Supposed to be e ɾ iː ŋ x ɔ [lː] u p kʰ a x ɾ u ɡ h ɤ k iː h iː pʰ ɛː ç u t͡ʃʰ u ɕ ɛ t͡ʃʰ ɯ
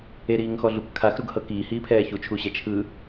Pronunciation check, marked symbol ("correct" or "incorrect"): incorrect